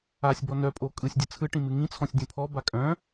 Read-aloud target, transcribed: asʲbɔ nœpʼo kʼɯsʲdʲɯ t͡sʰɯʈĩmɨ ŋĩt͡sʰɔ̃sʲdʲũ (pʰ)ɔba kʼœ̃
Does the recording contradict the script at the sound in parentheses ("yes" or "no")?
no